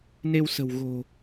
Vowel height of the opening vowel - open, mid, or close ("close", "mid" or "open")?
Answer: mid